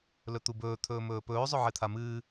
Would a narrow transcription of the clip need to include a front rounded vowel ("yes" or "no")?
no